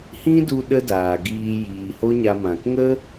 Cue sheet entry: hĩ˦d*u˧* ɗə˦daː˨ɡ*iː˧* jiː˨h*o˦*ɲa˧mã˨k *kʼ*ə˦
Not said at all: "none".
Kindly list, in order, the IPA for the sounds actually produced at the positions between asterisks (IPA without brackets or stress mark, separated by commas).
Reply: u˧, iː˧, o˦, ŋ